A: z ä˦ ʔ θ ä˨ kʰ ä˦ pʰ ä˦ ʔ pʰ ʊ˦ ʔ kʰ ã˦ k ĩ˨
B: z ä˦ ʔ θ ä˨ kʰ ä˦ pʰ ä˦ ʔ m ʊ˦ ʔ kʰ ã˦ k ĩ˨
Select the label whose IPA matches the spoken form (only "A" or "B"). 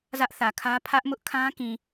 B